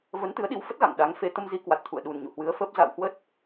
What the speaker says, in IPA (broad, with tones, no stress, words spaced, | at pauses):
və˨˦nt̪ɨ˨˦ə̯ɗi˨˦wfə˦˥t̚ ɣa̰˧˨ŋɗa˨˦ŋfe˧ t̪ə˧mzi˨˦ kwa˨˩t̚t̪ʰṵ˧˨ə̯ ɗu˨˩nɲṵ˧˨hwɨ˨˦ə̯fəː˦˥p̚ za̰˧˨whwə˦˥t̚